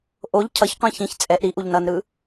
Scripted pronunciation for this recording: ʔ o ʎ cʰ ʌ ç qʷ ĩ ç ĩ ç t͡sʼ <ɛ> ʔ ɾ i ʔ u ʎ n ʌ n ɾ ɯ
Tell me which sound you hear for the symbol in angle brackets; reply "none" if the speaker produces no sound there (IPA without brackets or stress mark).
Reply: ɛ